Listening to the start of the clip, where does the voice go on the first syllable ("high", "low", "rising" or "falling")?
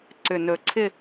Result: low